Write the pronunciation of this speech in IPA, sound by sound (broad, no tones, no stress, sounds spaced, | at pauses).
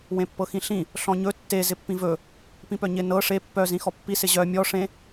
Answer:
w ẽ pː ɤ x ĩ ɬ ĩ | ɬ ɔ̃ ɲ ɵ tː e z ɪ pː ĩ v ɵ | p ĩ p œ ɲ ɪ n ɤ ʂ e pː œ z ĩ x ɔ pː i s ɪ ʑ œ mʲ ɔ ʂ ẽ